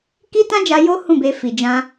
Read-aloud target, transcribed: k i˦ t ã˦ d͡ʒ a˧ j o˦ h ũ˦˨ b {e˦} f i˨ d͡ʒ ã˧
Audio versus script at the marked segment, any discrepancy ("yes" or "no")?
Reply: yes